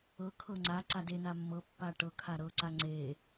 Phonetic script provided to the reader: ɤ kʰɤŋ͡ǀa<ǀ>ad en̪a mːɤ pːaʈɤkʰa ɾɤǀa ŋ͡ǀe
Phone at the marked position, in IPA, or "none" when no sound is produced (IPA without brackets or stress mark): ǀ